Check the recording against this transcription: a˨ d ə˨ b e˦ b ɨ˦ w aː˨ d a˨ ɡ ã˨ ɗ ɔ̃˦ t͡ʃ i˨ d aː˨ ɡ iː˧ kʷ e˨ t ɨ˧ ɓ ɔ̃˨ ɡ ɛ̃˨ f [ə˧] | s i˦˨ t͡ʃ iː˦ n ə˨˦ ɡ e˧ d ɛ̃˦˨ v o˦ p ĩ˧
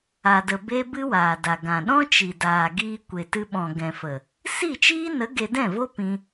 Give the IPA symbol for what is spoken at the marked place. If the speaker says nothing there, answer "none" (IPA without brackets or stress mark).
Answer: ə˨